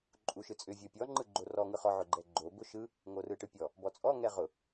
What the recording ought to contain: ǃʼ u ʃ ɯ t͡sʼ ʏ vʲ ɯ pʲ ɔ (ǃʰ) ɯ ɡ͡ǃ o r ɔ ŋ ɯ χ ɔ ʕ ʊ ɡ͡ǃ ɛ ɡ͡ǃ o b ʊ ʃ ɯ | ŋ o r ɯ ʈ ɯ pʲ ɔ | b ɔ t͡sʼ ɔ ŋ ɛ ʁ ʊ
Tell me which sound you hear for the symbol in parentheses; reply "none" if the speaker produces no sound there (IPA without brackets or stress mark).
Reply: ŋ͡ǃ